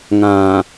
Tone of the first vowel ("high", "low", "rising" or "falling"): low